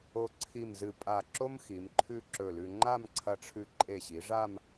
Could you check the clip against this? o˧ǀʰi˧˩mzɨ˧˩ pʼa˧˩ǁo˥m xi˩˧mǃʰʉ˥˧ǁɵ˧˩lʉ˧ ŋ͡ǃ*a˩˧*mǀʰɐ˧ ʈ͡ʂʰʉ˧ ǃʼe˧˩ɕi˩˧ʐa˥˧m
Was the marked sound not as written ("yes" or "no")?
yes